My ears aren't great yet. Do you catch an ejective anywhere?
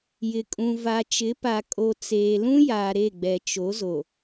yes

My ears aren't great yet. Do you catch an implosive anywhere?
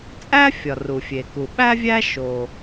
yes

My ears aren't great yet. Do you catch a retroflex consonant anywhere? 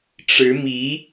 yes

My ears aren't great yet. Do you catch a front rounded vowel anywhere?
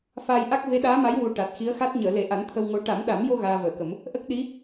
no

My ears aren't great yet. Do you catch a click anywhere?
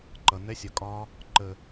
yes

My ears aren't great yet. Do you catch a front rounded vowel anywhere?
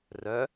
yes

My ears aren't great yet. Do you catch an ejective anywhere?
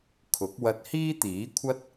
no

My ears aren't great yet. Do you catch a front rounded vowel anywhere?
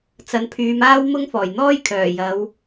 yes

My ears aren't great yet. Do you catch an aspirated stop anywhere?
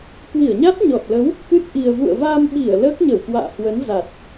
no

